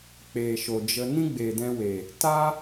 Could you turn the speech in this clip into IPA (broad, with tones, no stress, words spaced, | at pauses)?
k͡peː˨ʃo˨d͡ʒə˧ nĩ˦ɡ͡beː˨dɛ̃˧we˨ | ta˦